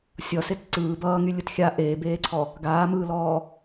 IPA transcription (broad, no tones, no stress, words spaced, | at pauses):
sʲʌset ǀɯː bʌːŋylʲɯt xʲa ʔeːbeːǀʰɔ | ɡaːmɯːlɔː